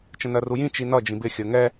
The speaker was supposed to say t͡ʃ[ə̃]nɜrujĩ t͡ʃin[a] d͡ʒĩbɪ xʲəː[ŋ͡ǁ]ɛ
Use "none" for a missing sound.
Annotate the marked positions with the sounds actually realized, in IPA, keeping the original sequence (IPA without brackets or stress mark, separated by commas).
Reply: ə̃, ʌ, ŋ